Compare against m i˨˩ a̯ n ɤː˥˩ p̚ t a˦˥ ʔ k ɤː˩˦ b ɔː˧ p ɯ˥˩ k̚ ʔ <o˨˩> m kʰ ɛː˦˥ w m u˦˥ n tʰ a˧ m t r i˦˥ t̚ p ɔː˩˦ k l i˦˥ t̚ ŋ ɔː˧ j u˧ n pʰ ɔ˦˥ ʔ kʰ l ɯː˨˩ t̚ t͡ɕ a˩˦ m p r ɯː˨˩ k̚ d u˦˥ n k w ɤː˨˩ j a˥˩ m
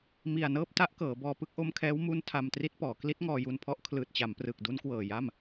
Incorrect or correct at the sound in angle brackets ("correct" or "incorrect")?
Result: incorrect